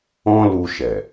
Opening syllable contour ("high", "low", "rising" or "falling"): high